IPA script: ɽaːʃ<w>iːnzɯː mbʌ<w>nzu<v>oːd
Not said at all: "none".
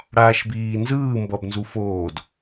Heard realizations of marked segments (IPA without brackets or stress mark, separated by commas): b, b, f